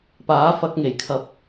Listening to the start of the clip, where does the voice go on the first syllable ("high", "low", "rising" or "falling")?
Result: rising